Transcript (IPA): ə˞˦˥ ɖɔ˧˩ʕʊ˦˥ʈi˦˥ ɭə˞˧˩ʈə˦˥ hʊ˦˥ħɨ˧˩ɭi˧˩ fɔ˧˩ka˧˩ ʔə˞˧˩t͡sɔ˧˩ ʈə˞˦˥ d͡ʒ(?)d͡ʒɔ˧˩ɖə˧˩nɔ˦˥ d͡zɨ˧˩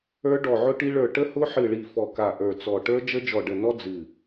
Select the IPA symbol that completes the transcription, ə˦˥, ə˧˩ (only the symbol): ə˦˥